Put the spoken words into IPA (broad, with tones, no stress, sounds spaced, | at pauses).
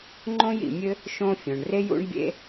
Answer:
ŋ͡ǃ õ˥ j ḭ˩ mʲ ɘ˥ | ʃ õ˥ fʲ õ˩ ɳ r e˥ j ṵ˥ ɳ bʲ ḛ˥